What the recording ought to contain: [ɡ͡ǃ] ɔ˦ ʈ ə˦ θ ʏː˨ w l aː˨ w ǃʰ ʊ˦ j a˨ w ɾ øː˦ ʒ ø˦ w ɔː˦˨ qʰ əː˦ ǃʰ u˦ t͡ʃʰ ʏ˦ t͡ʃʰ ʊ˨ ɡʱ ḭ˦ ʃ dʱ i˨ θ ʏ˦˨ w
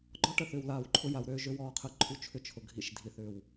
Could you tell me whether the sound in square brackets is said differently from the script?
no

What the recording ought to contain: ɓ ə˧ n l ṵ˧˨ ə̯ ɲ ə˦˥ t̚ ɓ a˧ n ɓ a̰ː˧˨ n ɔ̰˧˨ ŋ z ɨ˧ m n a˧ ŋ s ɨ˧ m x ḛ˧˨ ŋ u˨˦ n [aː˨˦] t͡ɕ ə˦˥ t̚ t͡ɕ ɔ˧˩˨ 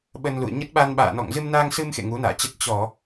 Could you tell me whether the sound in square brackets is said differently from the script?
yes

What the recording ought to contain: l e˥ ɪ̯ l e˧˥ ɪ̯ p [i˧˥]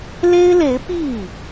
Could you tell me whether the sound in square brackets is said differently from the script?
yes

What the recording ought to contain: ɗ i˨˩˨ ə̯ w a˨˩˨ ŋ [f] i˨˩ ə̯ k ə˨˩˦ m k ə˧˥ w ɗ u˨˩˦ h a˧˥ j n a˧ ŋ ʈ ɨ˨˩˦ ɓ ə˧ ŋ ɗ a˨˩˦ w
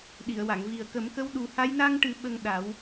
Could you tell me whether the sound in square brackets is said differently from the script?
yes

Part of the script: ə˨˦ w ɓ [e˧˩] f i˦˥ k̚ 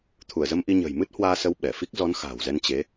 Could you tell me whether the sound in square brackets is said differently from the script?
yes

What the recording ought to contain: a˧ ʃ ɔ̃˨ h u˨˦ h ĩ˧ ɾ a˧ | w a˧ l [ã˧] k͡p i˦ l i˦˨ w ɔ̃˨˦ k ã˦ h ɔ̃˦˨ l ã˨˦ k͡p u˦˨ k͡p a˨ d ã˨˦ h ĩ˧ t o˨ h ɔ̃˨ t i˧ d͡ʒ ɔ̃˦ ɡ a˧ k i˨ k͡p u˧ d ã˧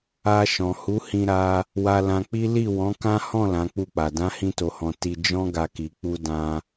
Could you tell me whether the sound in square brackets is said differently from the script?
no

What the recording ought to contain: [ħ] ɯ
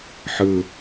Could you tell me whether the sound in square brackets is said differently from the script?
no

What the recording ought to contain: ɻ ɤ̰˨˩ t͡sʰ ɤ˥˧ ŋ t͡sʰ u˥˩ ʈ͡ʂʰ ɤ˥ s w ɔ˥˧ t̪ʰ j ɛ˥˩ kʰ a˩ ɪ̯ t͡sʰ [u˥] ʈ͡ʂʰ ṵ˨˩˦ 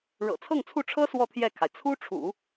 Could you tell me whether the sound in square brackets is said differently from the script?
no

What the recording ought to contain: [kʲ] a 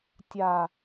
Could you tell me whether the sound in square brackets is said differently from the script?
yes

